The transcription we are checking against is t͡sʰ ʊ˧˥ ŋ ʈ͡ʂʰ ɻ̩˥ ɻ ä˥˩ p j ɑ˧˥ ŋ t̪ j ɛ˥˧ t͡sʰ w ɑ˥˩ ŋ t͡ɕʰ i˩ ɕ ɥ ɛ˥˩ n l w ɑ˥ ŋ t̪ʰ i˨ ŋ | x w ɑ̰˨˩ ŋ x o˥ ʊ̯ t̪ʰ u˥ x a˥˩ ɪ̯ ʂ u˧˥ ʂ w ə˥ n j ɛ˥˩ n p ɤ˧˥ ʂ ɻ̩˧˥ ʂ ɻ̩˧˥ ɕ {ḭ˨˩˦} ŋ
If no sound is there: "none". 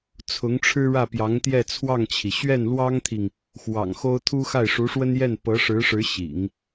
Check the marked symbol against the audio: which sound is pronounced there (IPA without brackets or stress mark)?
ḭ˨˩˦